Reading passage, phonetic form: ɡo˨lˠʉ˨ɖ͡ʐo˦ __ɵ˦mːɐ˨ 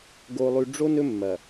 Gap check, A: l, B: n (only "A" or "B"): B